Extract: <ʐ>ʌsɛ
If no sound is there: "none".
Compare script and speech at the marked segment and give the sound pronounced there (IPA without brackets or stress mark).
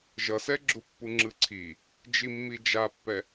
ʒ